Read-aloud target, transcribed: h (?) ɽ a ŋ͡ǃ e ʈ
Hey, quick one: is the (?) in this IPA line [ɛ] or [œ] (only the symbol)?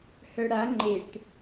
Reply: œ